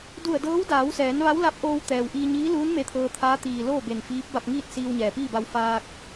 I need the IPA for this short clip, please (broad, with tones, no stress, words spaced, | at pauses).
du˧˩ə̯dɤː˧˥wdaː˩˧wsɛː˩˧n ʋa˧˥wla˧˥p̚ʔoː˧w t̪ɛː˩wʔiː˧ɲiː˧˥luː˧˥n me˧˥t̪ʰɤː˧t̪ʰaː˧˥ t̪iː˩ loː˥˨be˧˩nfiː˧˥p̚ ba˧p̚ŋiː˥˨t̚ siː˧wɲɛː˩piː˥˨ba˧w faː˧k̚